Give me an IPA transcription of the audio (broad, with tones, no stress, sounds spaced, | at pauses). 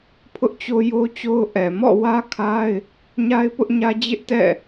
pʰ ʊ˦ ʔ t͡ɕ o˦ j o˦ t͡ɕ o˦ ʊ̯ ʔ ɛ˨ m ɔ̰˦˨ w ä˦ kʰ a˦ ɪ̯ | ɲ a˦ ɪ̯ p ʊ˦ ʔ ɲ ä˦ d͡ʑ ɪ˦ ʔ t ɛ̰˦˨